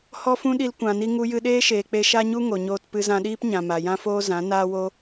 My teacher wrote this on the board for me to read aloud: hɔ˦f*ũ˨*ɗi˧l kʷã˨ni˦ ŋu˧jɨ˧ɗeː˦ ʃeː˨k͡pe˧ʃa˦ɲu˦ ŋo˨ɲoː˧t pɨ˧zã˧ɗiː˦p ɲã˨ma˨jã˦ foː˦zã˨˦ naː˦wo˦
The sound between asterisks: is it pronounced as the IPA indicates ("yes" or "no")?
no